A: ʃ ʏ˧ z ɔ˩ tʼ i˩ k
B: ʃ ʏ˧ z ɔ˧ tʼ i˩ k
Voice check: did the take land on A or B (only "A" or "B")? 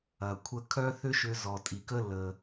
A